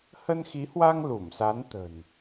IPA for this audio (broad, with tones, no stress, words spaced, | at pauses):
hə˧nxi˨˦hwa˧ŋ lu˧˩msa˨˦nt̪ə̤˨˩n